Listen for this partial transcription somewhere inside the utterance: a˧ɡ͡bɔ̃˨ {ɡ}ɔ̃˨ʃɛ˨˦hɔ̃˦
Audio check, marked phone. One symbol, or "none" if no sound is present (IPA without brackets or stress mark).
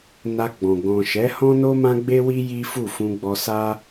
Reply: ɡ